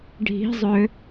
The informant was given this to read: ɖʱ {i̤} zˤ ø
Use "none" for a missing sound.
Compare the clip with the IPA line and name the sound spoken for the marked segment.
i̤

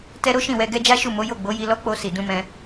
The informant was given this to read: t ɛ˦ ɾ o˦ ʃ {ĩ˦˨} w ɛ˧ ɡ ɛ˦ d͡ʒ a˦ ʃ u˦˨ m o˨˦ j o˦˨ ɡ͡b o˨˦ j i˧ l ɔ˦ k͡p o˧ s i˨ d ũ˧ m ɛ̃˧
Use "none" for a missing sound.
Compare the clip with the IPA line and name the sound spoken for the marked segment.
ĩ˦˨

